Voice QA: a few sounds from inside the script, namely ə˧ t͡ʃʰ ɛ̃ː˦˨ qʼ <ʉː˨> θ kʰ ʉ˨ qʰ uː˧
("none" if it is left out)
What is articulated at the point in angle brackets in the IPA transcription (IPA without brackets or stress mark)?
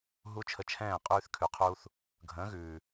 ʉː˧